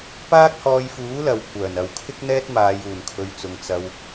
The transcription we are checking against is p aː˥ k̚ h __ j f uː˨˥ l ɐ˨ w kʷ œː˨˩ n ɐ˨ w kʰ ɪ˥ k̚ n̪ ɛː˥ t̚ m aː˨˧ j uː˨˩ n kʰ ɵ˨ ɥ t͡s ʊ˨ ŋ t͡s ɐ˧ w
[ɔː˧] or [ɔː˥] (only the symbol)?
ɔː˧